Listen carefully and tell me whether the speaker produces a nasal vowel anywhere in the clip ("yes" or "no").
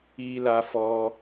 no